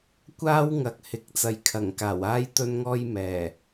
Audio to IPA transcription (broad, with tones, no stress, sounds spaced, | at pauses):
kʷ aː˥ w ŋ ɐ˨˥ k̚ h ɪ˨ k̚ t͡s ɐ˨ j kʰ ɐ˨˩ ŋ k aː˨˩ w aː˥ j t̪ ɵ˧ n ŋ ɔː˧ j m ɛː˨˩